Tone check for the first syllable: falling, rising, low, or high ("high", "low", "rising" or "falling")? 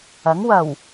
rising